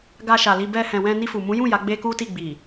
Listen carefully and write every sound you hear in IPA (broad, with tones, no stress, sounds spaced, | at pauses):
ɡ a˧ ʃ a˨ l i˧ b ɛ˧ h ɛ̃˨ w ɛ̃˧ n i˧ f u˨ m ũ˨˦ j ũ˦˨ j a˨˦ ɡ͡b e˦ k u˦ t i˦˨ ɡ͡b i˨